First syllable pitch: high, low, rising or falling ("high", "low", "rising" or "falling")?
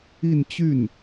falling